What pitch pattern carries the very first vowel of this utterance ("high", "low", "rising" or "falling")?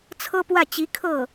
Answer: high